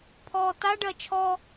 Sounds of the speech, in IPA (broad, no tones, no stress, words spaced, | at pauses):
pʰɔːtaɖɜ t͡ʃʰɔ